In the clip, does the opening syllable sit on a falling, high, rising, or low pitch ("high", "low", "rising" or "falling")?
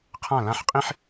falling